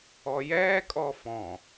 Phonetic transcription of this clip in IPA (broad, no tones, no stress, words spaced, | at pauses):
ɔjɛːkʼɔ fɔ̃